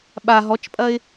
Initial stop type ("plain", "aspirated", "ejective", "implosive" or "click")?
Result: implosive